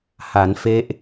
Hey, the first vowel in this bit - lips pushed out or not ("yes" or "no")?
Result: no